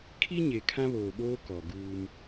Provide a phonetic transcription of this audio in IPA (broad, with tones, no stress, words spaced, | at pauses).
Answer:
kʰi˦ ɲe˨ kʰã˦βoː˨ɓoː˦ kɔ˨ ɡuː˦m